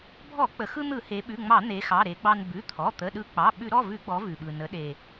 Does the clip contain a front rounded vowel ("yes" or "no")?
no